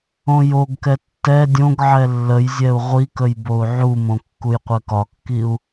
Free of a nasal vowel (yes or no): no